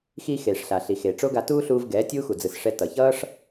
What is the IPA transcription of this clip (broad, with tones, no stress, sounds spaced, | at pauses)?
x iː˧ x eː˨ ʂ ɬ a˨ ɬ i˨ x eː˨ ʈ͡ʂ o˦ ɡ a˧ t uː˦ ɬ uː˧ v ɡ ɛː˨˦ tʲ uː˦ x u˨ d͡z ɯ˨ s ʂ ɛ˧ t ʌ˨ ç ʌː˦ ʂ